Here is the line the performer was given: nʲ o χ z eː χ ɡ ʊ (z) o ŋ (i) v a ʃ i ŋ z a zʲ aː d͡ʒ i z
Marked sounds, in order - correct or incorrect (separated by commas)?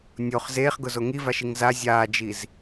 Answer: correct, correct